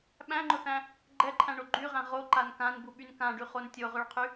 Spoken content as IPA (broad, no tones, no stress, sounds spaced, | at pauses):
ɓ æ̃ ŋ͡ǃ ʊ θ æ̃ | ɡ͡ǃ ɛ ǃʰ æ̃ ɳ o ɡ͡ǃ y ʁ æ̃ ʁ o ǃ a n k ã n b u ɓ y n k ã ɖ y χ o n tʲ o ʁ ø ɭ qʰ y